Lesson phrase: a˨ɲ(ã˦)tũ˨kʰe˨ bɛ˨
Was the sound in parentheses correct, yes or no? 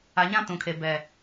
yes